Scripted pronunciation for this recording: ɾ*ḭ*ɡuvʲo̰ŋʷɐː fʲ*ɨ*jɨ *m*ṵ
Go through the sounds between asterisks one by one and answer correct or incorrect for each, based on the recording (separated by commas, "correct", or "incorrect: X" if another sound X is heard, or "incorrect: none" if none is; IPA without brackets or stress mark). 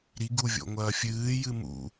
incorrect: i, incorrect: ɨː, correct